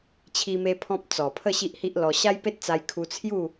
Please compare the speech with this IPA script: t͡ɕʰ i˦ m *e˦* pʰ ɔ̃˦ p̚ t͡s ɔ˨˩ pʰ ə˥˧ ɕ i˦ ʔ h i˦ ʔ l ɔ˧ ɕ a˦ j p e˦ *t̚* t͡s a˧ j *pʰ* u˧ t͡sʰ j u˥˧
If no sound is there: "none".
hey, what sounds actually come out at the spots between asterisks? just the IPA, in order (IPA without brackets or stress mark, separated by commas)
e˦, t̚, kʰ